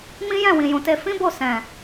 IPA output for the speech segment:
mĩ˦jɛ̃˦˨ wĩ˨jũ˨te˧ fĩ˦bo˦˨ sɛ̃˨

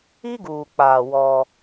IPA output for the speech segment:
i˦ɡuː˨k͡paː˨ wɔ˦

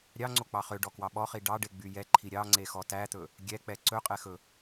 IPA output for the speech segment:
ɾʲɑŋ͡ǀok͡pɑ χøɖɔkwɑ ɓɔχi ɖɑɖeɡ͡by jɛǃʰi ɾʲɑŋ͡ǀexɔ tæt̪ɵ | ɡʲɛk͡pɛ ǀɵqʼɛxɵ

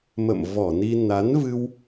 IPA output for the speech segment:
mə̰˧˨mvɔ˧˩ni˧ na˨˦nvɨ˧w

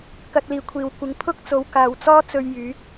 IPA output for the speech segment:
kɐ˧t̚ liː˨kʷʰiː˨wkʷɪ˨˥ŋ pʰʊ˥k̚ t͡so˨˧wkaː˨˧w t͡sɔː˥t͡sɵ˧ɥ jyː˨˥k̚

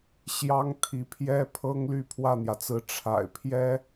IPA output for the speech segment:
ɕjɑ˥ŋt̪ʰi˧˥pʰjɛ˥pʰɤ˥ŋ ly˥˧pʰwä˥˩n̪jä˩t͡sɹ̩˧˥ ʈ͡ʂʰa̰˨˩ɪ̯pʰjɛ˥

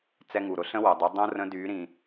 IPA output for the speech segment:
t͡sɛ˧ŋu˩ɾʊ˩˧ɬə̃˥ wɐ˩dˤy˩˧ dˤõ˥rə̃˧˥ dy˩˧ɾĩ˩

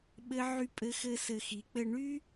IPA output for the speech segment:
ɓɘ˦ ʕy˧pʼɘ˧xɘ˧ sɘ˧xi˨˦ k͡pɘ˧ɳy˦

